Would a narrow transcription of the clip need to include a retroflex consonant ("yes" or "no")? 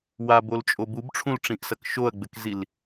yes